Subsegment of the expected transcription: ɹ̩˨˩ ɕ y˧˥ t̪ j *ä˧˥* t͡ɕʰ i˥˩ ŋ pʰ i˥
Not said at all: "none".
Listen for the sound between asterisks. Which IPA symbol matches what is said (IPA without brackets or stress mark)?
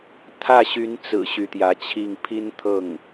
ä˧˥